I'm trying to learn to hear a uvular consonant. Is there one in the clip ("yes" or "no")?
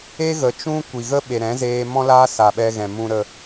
no